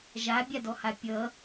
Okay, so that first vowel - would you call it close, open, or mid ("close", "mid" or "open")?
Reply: open